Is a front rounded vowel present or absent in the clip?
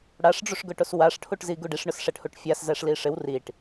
absent